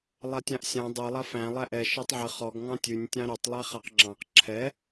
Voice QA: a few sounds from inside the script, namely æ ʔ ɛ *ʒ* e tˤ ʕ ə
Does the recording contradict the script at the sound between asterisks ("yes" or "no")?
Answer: yes